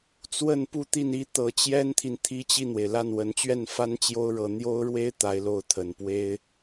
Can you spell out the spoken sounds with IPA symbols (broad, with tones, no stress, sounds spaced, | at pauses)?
t͡s w ə˥˧ n p u˥˧ t̪ i˥˩ n i˥ t̪ ɤ˧˥ t͡ɕ j ɛ˥ n t̪ʰ i˨ n t̪ʰ i˥ t͡ɕ i˥˩ n̪ w e˩ ɪ̯ l a˥˩ n w ə˧˥ n t͡ɕ ɥ ɛ˥˩ n f a˥ n t͡ɕ j o˥ ʊ̯ ɻ ɤ˧˥ n̪ j o˥ ʊ̯ ɻ w e˥ ɪ̯ t̪ a˧˥ ɪ̯ l o˧˥ ʊ̯ t̪ʰ ə˨˩ n p w e˥ ɪ̯